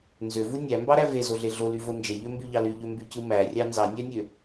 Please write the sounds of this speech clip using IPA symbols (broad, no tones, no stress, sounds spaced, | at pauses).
n z ø v u nʲ æ m b ɑ ɾ æ v e z o ɮ e ɮ o l y v o n d͡ʒ e ʎ ø m b y ʎ ɑ l y ʎ ø m b y c ɯ m æ rʲ ɑ n z ɑ nʲ æ nʲ ø